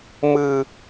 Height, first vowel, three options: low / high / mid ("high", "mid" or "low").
high